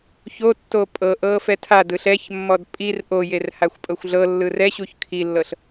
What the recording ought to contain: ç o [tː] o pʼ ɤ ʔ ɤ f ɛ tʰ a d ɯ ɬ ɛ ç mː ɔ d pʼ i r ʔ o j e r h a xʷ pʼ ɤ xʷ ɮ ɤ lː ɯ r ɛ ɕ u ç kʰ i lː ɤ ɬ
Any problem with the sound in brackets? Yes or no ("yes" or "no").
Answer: no